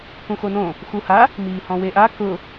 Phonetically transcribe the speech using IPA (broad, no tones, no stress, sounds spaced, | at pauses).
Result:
k ũ x o n õ | x u h a | m iː h ɔ̃ w e ʔ a k ʊ